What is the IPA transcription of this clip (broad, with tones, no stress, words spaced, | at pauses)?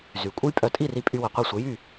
zy˩kʷʼə˥j pʼœ˩˥tʼi˥˩ri˧ pʼy˧wə˩qʷe˥˩sʷə˩˥ jy˥˩